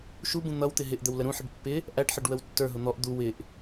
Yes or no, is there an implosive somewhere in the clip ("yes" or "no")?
no